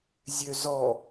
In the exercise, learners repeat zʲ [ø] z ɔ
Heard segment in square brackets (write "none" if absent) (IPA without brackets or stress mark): ø